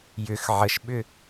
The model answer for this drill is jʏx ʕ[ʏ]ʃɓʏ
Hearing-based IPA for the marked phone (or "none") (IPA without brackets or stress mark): ə